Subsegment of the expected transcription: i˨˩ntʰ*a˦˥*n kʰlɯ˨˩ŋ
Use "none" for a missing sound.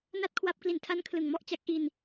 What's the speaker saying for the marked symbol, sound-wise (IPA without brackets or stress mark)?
a˦˥